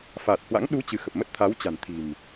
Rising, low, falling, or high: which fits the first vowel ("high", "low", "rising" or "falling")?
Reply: low